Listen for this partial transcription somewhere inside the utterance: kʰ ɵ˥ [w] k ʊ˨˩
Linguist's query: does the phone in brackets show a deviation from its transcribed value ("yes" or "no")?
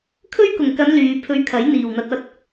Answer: yes